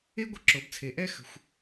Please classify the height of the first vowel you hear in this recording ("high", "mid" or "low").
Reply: mid